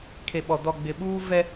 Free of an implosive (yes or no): no